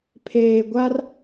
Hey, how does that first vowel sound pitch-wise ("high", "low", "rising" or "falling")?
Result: low